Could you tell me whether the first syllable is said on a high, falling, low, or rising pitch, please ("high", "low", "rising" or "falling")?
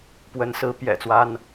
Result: rising